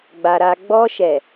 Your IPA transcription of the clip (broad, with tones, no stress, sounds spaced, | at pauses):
ɡ͡b a˨ ɾ a˨ ɡ͡b ɔ˧ ʃ ɛ˨